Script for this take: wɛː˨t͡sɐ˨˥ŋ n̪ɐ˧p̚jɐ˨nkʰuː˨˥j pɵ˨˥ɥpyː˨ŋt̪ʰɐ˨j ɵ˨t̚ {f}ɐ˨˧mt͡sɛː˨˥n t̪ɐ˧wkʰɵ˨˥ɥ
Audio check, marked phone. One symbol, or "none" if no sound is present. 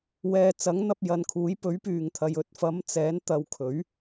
f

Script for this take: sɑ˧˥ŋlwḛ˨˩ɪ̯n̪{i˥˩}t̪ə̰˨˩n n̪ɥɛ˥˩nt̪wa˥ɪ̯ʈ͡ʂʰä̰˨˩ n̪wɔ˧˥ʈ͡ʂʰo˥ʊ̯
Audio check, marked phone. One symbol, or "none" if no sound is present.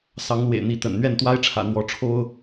i˧˥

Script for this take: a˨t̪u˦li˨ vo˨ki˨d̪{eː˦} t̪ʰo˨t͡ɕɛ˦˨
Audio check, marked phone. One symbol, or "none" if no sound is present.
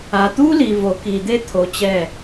e˦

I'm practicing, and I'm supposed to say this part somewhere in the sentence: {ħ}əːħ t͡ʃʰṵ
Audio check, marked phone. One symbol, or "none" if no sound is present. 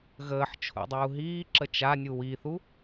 ɣ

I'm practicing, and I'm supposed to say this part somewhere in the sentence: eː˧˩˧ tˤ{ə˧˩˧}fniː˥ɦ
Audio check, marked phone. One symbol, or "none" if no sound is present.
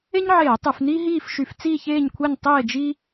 ɯ˧˩˧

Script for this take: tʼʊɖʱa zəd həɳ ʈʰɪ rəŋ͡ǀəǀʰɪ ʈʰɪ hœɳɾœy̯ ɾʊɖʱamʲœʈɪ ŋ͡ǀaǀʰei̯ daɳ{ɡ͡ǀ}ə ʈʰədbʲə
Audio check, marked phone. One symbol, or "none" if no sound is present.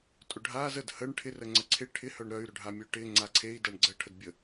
ɡ͡ǀ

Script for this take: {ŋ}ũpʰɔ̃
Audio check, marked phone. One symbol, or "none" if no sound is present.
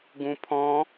ɡ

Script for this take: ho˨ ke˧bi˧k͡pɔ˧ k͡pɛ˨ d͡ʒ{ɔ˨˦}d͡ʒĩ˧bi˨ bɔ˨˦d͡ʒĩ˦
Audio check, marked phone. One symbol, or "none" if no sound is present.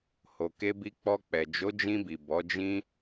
o˨˦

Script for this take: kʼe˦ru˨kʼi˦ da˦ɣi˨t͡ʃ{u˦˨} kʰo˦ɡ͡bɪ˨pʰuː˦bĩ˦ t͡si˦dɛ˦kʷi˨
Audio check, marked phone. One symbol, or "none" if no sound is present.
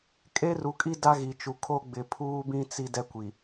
u˨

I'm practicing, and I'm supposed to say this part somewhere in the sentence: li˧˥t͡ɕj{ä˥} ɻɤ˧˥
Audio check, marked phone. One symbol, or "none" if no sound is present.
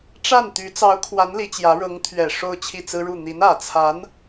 ä˧˥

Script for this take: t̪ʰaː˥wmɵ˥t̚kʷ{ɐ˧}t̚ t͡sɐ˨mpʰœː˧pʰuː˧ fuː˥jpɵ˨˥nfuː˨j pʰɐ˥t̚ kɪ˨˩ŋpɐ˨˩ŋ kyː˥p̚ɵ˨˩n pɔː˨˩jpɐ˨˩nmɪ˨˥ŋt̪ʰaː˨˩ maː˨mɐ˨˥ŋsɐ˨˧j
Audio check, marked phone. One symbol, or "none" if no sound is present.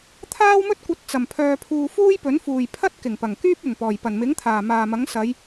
ɐ˧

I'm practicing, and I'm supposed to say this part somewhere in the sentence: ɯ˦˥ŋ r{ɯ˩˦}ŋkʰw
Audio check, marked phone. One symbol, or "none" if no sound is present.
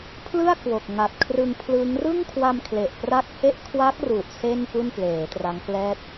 ɯ˥˩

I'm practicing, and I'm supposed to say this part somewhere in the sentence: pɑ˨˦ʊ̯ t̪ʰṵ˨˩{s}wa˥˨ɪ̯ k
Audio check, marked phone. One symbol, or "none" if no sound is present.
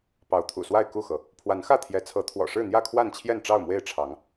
s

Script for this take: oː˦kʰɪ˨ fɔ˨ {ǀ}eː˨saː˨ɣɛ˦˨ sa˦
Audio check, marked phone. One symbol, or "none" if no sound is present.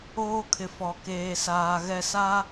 k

